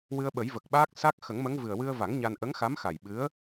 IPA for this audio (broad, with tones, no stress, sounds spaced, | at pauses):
w ɨ˧ ə̯ ɓ ə˨˩˦ j v ə˨˩ k̚ ɓ aː˦˥ k̚ s a˦˥ k̚ x ə˨˩˦ ŋ m ə˧˥ ŋ v ɨ˨˩ ə̯ w ɨ˧ ə̯ v a˨˩˦ ŋ ɲ a˧ n ʔ ə˧˥ ŋ x a˧˥ m x a˨˩ j ɓ ɨ˧˥ ə̯